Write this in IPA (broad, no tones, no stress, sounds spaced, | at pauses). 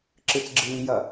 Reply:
ǁ ɨ t͡s ɡ͡ǁ ɨː j ɐ